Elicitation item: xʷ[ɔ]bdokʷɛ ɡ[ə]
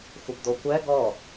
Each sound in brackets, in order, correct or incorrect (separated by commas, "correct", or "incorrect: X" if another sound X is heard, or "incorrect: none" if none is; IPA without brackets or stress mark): incorrect: ə, incorrect: ɔ